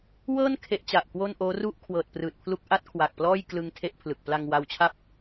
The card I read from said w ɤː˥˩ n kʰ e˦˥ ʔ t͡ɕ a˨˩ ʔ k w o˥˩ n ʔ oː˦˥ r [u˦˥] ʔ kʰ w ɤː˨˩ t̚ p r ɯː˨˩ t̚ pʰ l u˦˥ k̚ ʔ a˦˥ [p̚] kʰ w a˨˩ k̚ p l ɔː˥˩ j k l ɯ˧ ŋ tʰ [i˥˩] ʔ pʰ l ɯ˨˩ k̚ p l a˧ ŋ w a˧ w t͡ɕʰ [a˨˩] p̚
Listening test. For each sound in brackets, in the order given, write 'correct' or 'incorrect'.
incorrect: u˥˩, incorrect: t̚, incorrect: e˥˩, incorrect: a˥˩

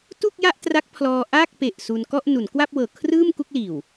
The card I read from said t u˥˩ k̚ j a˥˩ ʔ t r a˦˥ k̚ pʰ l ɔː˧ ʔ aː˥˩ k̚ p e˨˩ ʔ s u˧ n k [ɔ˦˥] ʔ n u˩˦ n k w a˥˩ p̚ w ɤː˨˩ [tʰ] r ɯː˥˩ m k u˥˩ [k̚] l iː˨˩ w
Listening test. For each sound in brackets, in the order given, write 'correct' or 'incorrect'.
incorrect: ɔ˥˩, incorrect: kʰ, correct

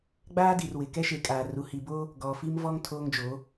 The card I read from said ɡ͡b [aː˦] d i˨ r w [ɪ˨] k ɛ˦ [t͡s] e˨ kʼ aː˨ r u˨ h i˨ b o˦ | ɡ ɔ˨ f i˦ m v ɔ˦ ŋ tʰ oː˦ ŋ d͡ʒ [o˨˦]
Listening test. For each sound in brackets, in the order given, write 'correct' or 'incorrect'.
correct, correct, incorrect: ʃ, correct

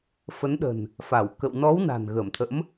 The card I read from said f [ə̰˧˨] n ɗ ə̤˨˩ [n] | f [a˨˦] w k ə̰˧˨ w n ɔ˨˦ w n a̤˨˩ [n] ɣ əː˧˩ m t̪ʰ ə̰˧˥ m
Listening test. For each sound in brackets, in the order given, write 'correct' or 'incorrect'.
incorrect: ə˨˦, correct, incorrect: a˧˩, correct

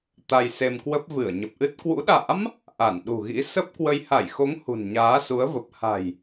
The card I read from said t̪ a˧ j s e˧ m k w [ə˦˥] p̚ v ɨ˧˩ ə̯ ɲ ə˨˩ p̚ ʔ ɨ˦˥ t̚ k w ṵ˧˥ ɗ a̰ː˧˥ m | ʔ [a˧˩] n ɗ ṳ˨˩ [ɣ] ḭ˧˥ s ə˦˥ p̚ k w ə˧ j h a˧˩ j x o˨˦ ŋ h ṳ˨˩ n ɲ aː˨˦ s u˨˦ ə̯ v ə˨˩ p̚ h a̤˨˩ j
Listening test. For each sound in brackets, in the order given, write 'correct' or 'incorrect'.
correct, correct, correct

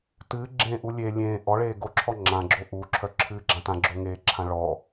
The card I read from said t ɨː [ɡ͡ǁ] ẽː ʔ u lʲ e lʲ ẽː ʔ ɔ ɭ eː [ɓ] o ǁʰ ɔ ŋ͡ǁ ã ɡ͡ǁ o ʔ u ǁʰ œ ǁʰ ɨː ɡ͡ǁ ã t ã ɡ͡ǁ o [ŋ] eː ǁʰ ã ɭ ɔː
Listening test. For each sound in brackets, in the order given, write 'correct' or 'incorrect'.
correct, incorrect: ɡ, correct

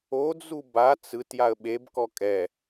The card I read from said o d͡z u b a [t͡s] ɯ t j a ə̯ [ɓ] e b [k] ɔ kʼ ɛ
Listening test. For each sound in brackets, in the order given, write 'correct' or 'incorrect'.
correct, correct, correct

